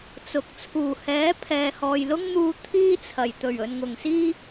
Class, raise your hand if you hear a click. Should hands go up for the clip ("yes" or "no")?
no